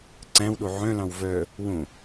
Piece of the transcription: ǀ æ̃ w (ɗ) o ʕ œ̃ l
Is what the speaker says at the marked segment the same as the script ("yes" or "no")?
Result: yes